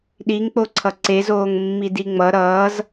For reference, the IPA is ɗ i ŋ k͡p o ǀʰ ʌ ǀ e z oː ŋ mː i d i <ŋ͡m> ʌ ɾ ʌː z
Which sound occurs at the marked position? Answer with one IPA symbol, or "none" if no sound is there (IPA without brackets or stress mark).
ŋ͡m